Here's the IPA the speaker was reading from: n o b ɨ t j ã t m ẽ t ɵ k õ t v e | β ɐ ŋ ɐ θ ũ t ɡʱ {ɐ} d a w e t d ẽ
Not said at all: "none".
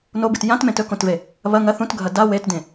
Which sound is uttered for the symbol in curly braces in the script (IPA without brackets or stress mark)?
ɐ